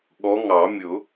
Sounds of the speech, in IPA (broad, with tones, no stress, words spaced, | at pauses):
ɠɔ˨˦ŋɑ˨˩˦mʲʊ˨˩˦